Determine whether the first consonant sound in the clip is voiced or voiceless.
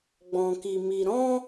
voiced